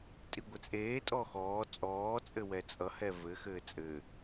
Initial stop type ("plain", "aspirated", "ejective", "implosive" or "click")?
ejective